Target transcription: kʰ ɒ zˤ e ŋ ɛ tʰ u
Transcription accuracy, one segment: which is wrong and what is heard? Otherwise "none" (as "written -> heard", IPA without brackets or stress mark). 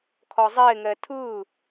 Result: u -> ɯ